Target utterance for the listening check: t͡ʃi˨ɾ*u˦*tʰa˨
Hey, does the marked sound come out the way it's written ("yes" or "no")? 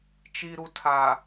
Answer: no